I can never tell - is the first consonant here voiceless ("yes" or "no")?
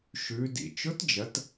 yes